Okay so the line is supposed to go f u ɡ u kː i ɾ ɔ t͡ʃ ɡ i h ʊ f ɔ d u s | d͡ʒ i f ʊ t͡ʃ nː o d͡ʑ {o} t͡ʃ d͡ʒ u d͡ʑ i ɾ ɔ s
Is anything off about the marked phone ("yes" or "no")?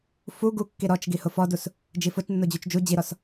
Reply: yes